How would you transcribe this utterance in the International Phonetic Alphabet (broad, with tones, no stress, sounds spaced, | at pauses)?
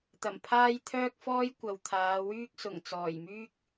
t̪ ɐ˨˩ m pʰ aː˥ j t̪ʰ œː˥ k̚ f ɔː˥ j kʷ ɐ˨ w t̪ʰ aː˨˧ w yː˥ k̚ s ʊ˨˩ ŋ t͡s ɔː˨˩ j m yː˥ k̚